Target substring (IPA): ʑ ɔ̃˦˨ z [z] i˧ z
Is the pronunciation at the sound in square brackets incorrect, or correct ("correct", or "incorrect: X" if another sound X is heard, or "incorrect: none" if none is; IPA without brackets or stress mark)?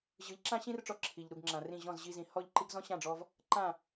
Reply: incorrect: ʑ